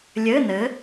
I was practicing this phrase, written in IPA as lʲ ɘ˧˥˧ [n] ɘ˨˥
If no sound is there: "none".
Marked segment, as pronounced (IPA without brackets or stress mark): n